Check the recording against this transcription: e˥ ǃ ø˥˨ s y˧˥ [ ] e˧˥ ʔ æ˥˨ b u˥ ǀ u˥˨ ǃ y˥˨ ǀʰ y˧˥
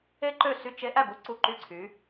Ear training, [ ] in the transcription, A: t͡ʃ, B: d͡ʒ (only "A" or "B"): A